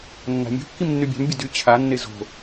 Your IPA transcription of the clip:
nːa̤mʲo̤ kːimnːybʲa̤m bʲədy t͡ɕʰanːe zo̤

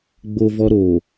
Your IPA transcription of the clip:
ɡ͡bo˦vɔ˦ɾo˨

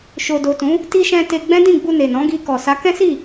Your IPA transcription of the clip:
ʃo˨do˨tũ˨˦ | ti˧ʃɛ̃˧ te˧ ɡ͡bɛ̃˦dĩ˦˨ɡ͡bu˧ ne˨nɔ̃˨˦ ɡi˧ kɔ˨ sa˨˦ kɛ̃˦si˦˨

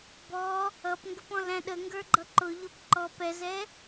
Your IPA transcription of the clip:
bɔ | ʌpŋɡəpɔ̃læ̃ ɗəŋɡə˞ɡ͡ǃʌ ǃʊʎʊp ǃɔp ɛzɛ

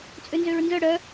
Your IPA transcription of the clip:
t͡sʼønzøɹnzœ ɽœ

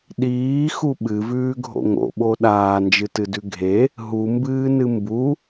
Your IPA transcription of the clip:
ɗiːxu ɓɨvʉːɡʱo̰ ŋo̰ɓo ɗaːnd͡ʒɨtɨdʉ ɡʱe | ɦumbɨːnɨ mbu

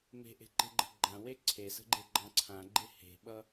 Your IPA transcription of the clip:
me̤ʔe̤ǃe̤ɡ͡ǃə̤ ɡ͡ǃãwe ǀʰesə̤ɡ͡ǃeɡ͡ǃɑ̃ ǀʰãɡ͡ǃe he̤ɓʌ

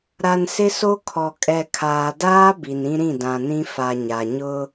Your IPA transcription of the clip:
ɾa˨nsɪ˦so˦kʰɔ˨ kʼɛ˨kʰaː˨daː˦ bi˨n ĩ˦ɾĩ˦˨ dã˨nĩ˦ fa˨ɲa˨ ɲʊ˦

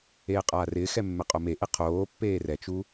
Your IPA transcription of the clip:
eːqʼaːrɪːxɛ mːɛqʼomeʔe qʰoːpːeː rɛt͡ʃu

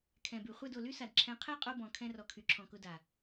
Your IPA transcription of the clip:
kʰɛ̃˨by˨ χʷɛ˦˨do˨ly˦sa˨d ǁʰɛ̃˨˦qʰɛ˦qʼo˧bɔ̃˨ kʰɛ̃˧rɔ˨ kʰy˨ǁʰɔ̃˨kʊ˧ da˨

